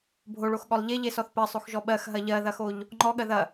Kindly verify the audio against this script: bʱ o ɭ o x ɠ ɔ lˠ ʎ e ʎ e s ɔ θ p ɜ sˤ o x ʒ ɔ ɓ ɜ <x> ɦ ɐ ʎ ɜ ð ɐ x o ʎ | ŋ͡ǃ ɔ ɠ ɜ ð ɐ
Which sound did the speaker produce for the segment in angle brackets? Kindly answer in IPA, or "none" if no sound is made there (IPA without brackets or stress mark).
x